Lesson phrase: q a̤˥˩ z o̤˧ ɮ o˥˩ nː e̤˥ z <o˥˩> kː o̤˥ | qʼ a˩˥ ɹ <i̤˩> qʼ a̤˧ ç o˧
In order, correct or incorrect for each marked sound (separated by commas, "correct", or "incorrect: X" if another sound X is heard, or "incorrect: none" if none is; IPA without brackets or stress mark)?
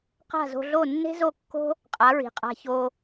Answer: correct, correct